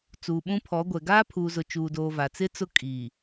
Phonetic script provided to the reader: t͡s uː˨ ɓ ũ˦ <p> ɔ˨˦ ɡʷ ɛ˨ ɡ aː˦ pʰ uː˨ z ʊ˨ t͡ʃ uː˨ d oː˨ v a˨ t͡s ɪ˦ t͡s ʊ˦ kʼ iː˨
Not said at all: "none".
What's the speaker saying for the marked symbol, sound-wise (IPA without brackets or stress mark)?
pʰ